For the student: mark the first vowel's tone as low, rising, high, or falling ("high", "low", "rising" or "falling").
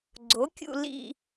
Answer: rising